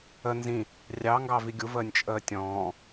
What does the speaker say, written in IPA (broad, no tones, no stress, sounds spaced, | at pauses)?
ə n z ĩ | rʲ ɑ ŋ ɡ ɑ v i ɡʲ u v əː nʲ t͡ʃʼ əː tʲ ɔ̃ː